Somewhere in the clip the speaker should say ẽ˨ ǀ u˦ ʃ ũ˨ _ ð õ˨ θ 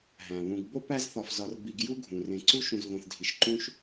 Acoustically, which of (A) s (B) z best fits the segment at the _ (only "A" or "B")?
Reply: B